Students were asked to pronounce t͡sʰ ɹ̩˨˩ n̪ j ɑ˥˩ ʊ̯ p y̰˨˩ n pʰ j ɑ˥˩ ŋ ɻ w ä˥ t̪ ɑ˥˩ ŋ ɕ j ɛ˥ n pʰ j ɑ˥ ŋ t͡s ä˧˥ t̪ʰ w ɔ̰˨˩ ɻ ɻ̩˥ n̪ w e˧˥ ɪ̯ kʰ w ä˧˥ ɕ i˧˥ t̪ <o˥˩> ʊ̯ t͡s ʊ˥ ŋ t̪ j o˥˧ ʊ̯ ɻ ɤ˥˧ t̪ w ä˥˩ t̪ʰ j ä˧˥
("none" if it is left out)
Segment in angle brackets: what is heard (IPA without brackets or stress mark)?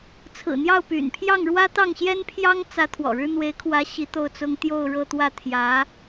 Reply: o˥˩